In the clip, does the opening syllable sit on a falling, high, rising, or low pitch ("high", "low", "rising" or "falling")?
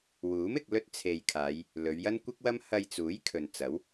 rising